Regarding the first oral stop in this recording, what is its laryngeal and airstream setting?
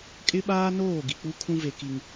ejective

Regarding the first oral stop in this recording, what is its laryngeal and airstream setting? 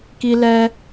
plain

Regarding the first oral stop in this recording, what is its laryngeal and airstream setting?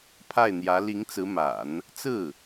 aspirated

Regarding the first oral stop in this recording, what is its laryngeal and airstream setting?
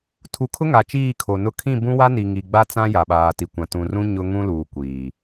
aspirated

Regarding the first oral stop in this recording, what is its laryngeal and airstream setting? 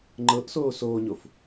click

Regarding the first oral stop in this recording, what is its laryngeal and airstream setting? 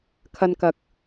aspirated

